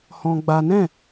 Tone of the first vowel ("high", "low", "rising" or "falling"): high